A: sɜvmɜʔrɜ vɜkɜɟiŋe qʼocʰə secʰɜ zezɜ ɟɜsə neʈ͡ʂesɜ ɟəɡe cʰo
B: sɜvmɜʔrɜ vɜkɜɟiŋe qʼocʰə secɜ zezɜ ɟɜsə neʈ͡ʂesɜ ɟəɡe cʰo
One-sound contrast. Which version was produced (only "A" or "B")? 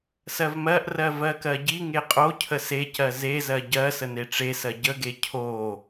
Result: B